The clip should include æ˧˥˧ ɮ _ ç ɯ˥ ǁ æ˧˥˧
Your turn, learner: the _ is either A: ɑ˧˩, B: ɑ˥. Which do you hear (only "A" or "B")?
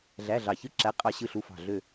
A